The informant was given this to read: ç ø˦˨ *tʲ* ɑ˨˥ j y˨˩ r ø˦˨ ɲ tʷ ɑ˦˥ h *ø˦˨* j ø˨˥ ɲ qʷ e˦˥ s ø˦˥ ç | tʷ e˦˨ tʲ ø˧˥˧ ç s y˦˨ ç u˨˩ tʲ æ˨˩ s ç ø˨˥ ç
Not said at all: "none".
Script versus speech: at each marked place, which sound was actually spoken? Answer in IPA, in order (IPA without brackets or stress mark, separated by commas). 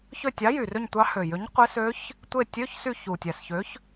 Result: tʲ, ø˨˩